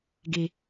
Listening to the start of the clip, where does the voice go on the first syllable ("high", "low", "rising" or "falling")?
high